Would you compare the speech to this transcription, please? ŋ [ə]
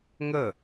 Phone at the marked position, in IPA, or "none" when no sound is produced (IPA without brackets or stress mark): ə